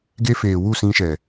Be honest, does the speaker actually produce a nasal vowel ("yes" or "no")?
yes